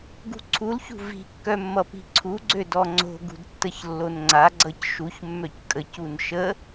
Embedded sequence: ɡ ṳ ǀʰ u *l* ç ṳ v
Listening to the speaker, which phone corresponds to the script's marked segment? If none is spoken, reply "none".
l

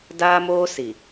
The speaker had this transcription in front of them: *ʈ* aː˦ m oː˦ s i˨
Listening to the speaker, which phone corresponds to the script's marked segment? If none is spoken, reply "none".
d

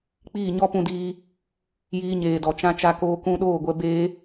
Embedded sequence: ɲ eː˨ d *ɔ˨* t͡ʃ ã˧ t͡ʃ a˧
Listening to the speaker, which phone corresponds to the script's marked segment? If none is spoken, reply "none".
ɔ˨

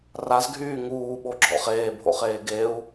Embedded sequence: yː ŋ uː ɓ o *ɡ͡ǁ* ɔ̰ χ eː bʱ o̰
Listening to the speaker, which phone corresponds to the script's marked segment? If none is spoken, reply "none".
ɡ͡ǁ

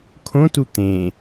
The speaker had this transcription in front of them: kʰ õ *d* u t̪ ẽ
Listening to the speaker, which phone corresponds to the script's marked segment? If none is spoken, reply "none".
t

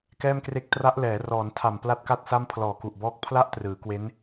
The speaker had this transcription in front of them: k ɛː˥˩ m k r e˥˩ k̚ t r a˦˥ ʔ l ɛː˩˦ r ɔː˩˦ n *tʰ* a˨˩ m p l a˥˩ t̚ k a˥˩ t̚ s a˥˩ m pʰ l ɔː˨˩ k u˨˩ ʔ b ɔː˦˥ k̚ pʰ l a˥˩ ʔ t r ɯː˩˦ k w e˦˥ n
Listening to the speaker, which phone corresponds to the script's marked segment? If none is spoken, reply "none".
tʰ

